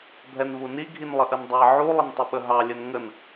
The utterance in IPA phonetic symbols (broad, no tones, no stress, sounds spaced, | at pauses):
bʱ ɛ n v u n i ɡʱ i n lˠ ə ʔ ə n dˤ ɑ ʕ u lˠ ə n tˤ ə ɓ ə ɦ ɑ lʲ ə n ŋ ə n